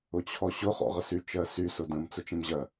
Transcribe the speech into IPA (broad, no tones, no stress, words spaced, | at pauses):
ʊt͡ɕʰɔɕʊ χɔ̰ʁəsy t͡ʃɜsy sʊdə̃m t͡sʊt͡ʃẽmʑɜ